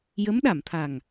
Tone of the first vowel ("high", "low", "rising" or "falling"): rising